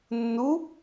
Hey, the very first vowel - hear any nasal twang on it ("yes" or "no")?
no